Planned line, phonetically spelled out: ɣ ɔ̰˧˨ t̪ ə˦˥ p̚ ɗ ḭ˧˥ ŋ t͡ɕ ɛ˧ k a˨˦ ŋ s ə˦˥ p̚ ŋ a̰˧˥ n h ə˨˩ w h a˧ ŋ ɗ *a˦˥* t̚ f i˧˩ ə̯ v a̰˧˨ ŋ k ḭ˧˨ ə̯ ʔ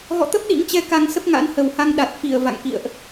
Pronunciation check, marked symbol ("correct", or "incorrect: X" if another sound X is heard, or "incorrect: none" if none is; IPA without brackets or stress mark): incorrect: a˨˩